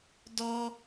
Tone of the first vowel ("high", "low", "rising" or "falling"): high